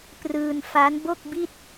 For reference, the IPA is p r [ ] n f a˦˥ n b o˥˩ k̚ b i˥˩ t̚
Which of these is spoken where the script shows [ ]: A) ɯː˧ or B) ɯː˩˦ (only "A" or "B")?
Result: A